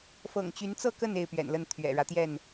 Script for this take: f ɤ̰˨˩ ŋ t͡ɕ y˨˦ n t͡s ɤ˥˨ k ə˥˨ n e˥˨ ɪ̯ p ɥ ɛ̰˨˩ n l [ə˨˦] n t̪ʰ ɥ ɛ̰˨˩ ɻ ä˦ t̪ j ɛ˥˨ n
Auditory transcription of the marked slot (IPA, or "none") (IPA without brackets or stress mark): ə˥˨